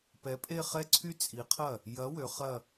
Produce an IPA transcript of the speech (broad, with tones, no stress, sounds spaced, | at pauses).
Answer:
p ɛ˨˥ pʼ e˥˧ χ ɛ˥˧ ǀʰ y˥˧ t͡sʼ i˨˥ qʰ ɐ˥˩ | j ɐ˨˥ w ø˨˥ χ ɐ˥˧